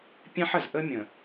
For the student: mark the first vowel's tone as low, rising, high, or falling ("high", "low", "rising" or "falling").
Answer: high